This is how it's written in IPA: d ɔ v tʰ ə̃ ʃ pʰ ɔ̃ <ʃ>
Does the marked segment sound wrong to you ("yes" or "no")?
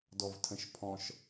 no